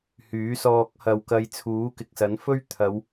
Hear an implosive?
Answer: no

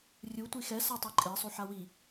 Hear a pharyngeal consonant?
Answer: yes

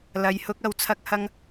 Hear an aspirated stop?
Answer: yes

